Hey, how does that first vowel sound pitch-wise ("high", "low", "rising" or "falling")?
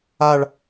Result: falling